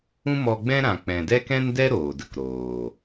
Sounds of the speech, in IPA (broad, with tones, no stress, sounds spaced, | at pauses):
ũ˦ m ɔ˧ ɡ͡b ɛ̃˦ ɾ ã˨ k͡p ɛ̃˨ d ɛ˦ k ɛ̃˦ n d ɛ˦ ɾ oː˨ d ə˧ k ɾ oː˨